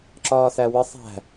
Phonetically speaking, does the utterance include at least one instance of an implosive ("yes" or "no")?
no